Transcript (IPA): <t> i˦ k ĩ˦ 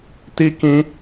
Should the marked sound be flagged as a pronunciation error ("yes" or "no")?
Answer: no